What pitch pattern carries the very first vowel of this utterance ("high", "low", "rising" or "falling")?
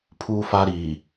high